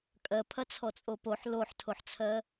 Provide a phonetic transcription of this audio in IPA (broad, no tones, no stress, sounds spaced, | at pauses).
kʼ ɜ pʰ ɐ t͡sʰ ɔ t͡sʼ o p o ħ l o ħ tʰ o ħ t͡sʰ ɜ